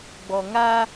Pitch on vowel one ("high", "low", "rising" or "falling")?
low